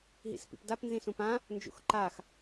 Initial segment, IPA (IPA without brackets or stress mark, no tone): ɦ